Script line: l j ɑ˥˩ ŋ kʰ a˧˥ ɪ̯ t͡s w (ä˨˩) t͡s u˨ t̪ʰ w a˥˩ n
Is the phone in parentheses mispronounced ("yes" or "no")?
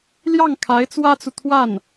yes